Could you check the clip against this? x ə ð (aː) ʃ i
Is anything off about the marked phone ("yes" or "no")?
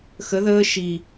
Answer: yes